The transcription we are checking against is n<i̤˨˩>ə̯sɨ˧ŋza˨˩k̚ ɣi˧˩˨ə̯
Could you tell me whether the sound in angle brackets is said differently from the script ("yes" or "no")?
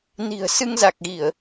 no